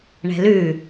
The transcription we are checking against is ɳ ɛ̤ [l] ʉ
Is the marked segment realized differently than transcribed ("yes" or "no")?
no